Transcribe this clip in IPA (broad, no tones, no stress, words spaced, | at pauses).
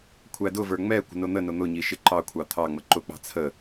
kʷʰædʊvə˞ ŋ͡mɛ kʷə̤nʊn̪ənʊ n̪ʊɲi ʃɪǃɑkʷʰɑ t̪ʰɑŋ͡mə ǃʊk͡pɑ̤ t͡sʰə